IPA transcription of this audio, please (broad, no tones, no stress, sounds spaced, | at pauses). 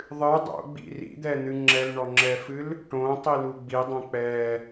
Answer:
ðˤ ɨ dˤ o̰ ɡ͡b ḭ r ḭ d̪ ɛ n̪ ɨ ŋ͡ǁ ɛ l ɳ ɔ ŋ͡ǁ ɛ f ɨ l | ʈ õ tˤ i l u ɡ͡b i dˤ õ k͡p ɛ